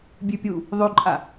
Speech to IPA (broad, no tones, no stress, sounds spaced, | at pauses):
bʲ ʉ pʲ u | ðˤ ʉ ǃʼ a